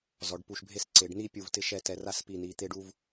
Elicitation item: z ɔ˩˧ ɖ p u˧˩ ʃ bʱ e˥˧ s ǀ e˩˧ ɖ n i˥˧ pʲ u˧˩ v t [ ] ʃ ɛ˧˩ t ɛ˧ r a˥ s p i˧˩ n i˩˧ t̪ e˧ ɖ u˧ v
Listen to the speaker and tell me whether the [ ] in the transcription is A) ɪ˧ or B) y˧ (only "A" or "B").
A